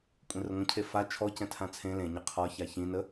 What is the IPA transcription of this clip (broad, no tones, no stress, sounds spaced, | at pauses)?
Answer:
kʷʼ ẽ r ə ŋʷ ə̃ cʰ e f a t͡ʃʰ ɔ c ɛ̃ tʰ ã t͡sʰ ẽ l ẽ ɲ ə qʰ ɒ ç a ç ĩ n ə